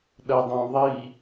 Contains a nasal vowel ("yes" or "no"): yes